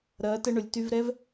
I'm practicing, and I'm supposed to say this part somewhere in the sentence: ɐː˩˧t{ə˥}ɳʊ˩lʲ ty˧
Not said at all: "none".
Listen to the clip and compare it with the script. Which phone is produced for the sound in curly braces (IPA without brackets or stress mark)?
ə˧